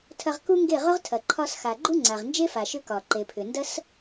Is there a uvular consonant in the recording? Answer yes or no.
yes